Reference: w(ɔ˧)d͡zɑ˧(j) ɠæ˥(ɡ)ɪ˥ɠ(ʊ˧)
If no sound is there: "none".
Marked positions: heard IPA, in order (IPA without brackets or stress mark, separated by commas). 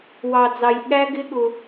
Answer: ɑ˧, j, ɡ, ʊ˧